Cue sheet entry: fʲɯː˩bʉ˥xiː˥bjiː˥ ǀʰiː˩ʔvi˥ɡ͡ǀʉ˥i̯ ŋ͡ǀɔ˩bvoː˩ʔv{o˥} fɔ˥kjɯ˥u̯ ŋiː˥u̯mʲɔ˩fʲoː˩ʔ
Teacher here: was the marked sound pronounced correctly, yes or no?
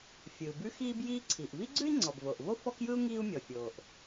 yes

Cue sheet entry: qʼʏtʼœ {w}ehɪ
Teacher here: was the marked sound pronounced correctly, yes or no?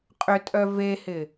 no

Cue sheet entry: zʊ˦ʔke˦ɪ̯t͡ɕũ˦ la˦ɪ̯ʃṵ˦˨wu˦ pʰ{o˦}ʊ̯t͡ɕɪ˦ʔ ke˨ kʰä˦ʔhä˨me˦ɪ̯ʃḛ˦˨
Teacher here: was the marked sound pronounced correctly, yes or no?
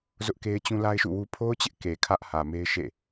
yes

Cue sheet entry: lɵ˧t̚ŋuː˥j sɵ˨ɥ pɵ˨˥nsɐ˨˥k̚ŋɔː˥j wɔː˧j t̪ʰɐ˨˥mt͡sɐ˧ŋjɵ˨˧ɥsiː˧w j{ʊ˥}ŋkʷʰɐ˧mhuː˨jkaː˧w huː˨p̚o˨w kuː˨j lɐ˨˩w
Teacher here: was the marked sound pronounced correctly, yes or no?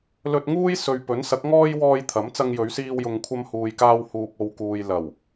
no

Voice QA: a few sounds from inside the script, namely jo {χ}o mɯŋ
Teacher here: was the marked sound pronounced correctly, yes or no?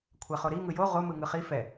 no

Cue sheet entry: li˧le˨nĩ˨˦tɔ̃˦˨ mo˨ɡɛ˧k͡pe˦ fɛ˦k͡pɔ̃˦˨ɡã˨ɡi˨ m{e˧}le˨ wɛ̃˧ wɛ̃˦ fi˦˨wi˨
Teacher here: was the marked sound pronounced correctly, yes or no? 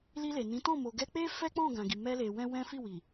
no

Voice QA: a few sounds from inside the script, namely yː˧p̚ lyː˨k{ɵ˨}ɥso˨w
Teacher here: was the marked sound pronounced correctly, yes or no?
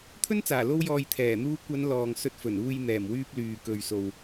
yes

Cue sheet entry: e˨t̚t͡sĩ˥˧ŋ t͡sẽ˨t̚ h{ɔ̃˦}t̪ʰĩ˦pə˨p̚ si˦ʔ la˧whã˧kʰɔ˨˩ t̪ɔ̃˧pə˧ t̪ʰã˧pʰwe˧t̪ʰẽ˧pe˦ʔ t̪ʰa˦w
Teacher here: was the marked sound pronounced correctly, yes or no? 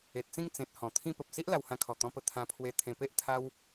no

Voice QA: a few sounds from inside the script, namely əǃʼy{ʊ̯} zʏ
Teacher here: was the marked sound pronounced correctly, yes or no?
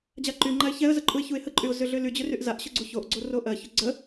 yes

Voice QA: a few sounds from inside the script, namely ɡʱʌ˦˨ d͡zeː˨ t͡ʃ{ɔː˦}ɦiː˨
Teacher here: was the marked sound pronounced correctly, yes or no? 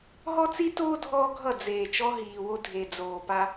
no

